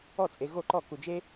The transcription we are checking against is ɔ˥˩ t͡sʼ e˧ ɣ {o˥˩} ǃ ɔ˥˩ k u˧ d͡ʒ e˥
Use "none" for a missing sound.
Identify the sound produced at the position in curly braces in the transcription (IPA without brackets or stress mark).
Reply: o˥˩